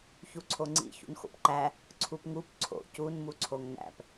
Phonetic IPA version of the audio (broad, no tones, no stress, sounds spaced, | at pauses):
ç u ǀʰ o ŋ͡ǀ ḭ ç ṵ n x o̰ p ǃ æ | ǀʰ u p ŋ u p ǀʰ o̰ c u n m u ǀʰ o ŋ n æ̰ p